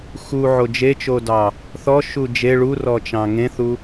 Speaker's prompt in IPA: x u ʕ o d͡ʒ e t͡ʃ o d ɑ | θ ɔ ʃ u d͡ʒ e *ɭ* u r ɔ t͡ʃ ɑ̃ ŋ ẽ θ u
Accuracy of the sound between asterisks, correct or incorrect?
correct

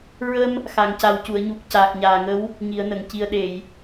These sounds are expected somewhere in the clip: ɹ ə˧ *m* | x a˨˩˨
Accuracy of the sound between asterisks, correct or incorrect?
correct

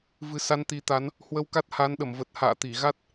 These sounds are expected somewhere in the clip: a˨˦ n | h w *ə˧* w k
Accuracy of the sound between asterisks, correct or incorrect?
correct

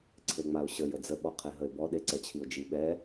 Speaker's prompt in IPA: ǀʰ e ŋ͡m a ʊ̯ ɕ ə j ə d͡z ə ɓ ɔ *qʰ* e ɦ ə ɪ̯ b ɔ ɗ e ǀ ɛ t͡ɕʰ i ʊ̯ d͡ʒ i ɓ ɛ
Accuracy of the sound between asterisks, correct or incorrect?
correct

